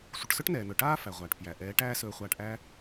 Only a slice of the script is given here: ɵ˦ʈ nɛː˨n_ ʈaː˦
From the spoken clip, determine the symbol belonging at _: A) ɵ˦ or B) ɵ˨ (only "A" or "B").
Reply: B